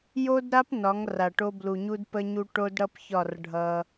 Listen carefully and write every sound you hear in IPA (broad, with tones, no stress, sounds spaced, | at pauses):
j o˦ d ɾ a˦ p n ɒ˨˦ ŋ r a˨ ʈ o˦ b l u˨ ɲ u˦ d p ə˦ ɲ u˦ ʈ o˦ d ɽ ʌ˦ p ç ɒ˦˨ r ɖʱ ʌ˦